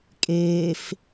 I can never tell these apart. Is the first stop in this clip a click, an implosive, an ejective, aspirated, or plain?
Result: ejective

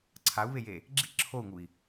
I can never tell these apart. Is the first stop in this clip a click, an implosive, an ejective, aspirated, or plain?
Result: click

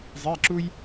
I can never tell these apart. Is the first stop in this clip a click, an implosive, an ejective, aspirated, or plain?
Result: click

